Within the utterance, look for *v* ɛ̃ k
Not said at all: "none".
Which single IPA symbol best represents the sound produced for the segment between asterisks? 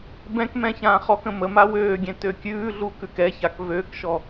b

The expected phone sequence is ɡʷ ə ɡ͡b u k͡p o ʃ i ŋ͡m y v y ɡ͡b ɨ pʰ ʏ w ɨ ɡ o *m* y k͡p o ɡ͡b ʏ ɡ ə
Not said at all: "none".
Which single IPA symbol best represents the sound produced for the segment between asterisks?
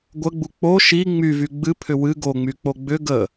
ŋ͡m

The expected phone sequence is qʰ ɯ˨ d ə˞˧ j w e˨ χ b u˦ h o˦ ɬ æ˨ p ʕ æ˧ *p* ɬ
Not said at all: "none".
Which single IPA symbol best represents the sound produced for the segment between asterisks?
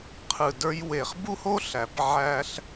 none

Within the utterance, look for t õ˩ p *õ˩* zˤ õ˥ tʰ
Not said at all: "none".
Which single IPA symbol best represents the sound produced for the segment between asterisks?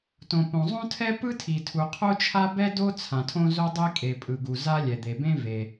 õ˩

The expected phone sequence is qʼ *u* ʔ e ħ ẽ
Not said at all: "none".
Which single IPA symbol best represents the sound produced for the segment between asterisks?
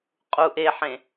u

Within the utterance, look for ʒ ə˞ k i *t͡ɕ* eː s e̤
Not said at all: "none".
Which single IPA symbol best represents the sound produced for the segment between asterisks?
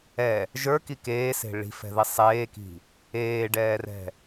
k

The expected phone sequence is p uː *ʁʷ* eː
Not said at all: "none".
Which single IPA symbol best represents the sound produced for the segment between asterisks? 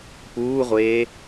ʁʷ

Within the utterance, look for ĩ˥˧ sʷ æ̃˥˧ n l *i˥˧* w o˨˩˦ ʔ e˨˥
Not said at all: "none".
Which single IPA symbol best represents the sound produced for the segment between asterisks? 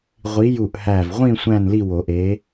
i˥˧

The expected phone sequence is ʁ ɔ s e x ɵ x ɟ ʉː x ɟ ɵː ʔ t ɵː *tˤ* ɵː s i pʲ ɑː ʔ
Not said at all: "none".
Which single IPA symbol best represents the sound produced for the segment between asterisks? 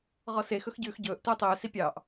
tˤ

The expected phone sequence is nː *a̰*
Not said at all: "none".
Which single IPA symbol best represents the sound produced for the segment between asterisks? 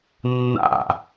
a̰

